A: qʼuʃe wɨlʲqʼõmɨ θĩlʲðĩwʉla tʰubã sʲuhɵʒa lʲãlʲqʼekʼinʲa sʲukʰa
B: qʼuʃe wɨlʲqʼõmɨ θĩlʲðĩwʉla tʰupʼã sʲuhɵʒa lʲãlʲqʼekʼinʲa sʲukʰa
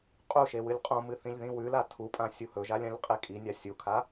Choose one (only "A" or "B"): B